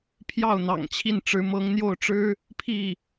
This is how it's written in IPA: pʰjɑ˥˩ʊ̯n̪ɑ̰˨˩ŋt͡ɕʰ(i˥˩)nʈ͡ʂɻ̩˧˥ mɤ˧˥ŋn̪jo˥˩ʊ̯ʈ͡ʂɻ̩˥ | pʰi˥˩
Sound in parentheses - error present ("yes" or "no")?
no